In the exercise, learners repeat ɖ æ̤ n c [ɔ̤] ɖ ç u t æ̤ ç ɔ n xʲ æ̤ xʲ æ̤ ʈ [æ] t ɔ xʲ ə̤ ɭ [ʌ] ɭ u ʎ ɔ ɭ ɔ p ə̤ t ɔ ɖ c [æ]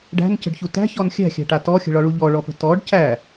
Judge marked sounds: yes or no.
no, no, no, yes

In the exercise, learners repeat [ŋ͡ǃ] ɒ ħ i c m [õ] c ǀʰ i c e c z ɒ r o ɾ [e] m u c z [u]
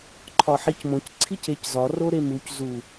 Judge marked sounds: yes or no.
no, yes, yes, yes

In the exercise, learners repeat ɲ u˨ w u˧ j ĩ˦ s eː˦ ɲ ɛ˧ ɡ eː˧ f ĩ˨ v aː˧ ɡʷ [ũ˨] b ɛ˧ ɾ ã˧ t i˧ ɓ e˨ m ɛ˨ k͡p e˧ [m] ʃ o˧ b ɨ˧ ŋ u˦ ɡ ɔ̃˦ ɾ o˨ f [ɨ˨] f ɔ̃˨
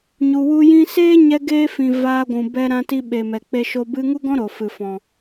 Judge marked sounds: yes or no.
yes, no, yes

